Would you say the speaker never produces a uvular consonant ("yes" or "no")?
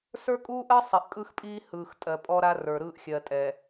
yes